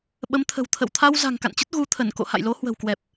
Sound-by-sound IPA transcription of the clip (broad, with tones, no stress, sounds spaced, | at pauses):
ɓ ə˨˦ m t̪ʰ ə̤˨˩ w t̪ʰ ə̰˧˨ w t̪ʰ a˧ w z a̤˨˩ ŋ k a̰˧˨ n t͡ɕ ə˦˥ t̚ ɣ u˨˦ t̪ʰ ə˧˩ n k o̰˧˨ h a̰˧˨ j l o˨˦ h w ə̤˨˩ w k w ɛ˨˩ p̚